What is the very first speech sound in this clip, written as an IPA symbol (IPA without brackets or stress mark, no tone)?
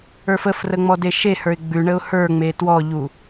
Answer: ə˞